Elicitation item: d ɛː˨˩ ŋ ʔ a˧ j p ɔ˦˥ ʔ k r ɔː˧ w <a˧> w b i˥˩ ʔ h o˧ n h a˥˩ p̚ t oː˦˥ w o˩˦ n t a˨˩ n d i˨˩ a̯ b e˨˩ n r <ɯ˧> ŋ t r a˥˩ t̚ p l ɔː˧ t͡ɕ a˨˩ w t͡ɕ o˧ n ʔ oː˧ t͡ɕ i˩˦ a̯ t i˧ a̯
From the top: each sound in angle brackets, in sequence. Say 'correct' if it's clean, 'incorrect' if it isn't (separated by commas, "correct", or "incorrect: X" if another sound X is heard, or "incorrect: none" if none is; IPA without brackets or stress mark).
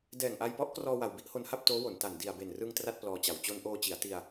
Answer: incorrect: a˨˩, correct